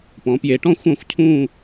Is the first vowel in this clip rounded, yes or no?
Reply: yes